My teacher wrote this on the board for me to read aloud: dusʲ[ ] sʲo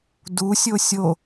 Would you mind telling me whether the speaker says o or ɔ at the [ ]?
o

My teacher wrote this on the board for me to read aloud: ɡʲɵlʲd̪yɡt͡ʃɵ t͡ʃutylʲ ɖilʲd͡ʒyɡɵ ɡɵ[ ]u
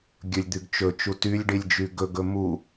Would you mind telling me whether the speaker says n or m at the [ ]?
m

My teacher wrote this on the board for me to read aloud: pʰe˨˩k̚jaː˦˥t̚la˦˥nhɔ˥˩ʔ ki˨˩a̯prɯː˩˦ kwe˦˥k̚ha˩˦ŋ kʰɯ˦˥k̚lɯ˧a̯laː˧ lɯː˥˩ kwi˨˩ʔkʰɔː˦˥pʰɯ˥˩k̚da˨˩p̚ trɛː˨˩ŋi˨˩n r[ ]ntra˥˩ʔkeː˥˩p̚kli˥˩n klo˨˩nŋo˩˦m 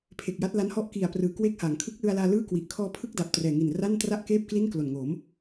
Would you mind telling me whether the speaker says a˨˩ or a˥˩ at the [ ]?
a˥˩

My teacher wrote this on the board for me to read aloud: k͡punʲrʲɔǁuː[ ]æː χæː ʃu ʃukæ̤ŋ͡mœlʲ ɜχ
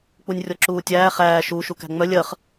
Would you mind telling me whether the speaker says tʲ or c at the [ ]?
tʲ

